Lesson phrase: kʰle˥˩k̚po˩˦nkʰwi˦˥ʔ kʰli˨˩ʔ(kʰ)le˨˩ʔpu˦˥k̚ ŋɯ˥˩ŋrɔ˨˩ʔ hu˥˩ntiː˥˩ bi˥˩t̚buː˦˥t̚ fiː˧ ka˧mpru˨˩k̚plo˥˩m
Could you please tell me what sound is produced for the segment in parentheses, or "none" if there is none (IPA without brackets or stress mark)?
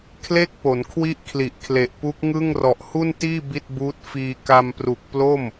kʰ